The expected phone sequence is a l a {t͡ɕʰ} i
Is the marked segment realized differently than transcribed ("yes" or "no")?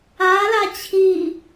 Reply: no